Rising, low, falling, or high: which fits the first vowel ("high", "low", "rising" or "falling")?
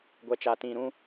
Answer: low